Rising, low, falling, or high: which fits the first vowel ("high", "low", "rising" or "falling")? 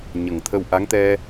low